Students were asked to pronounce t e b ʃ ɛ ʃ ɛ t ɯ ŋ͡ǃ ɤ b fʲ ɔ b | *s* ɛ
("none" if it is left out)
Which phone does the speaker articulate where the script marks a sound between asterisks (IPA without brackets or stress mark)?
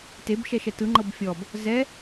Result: z